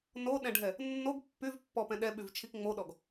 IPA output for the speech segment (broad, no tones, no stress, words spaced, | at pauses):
noɗɛ̃ɖʱɛ | nːoɡ pːyvpːɔpɛ̃ ɗɛɓyvt͡ʃʰik ŋ͡moɗɔɡ